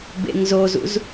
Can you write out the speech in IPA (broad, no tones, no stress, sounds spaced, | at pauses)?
b ḛ ŋ z o z ṵ z